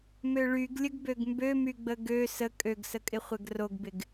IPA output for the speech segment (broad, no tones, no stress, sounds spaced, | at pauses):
m ø ɭ y ɡ lʲ ə ɡ b ø ɡ m b ø m y ɡ͡b ə ɡ ø s ə kʼ ø ɡ s ə kʼ ɪ χʷ ɛ ɡ r o ɡ b ɪ ɡ